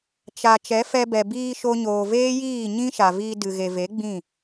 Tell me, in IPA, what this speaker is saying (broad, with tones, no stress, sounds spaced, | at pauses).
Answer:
t͡ʃ a˨ t͡ʃ ɛ˨˦ f ɛ˧ b ɛ˨ b iː˧ ʃ o˧ ɲ oː˨ v eː˦ j iː˦˨ ɲ ĩ˦ ʃ a˨ v iː˧ d ɨ˨ ɣ e˨ v e˨˦ ɡ͡b ĩ˦˨